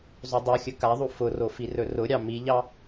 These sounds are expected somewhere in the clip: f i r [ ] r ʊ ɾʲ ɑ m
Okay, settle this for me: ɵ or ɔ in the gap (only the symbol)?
ɵ